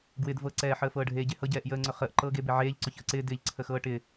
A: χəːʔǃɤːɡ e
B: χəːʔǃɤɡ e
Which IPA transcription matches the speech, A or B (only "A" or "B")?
A